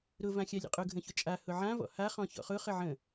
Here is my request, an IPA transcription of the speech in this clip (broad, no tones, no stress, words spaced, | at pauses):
ɾʊ vãxʲalʲə̰qʼʊ ɡʱə̃çʊt͡ʃʼa hʊʕã vɔ̰ha χɔ̃çɔ̰χʊ χəʕə̃